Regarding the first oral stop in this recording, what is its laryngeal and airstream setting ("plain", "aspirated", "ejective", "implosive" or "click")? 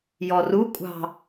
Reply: ejective